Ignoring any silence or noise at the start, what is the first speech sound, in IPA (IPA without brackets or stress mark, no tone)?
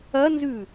ɐ